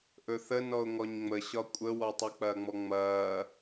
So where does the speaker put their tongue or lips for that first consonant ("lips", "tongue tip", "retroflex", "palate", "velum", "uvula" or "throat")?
throat